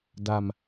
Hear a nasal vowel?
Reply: no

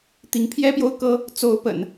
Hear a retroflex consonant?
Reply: no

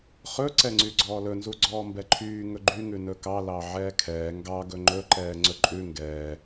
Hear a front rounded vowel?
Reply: yes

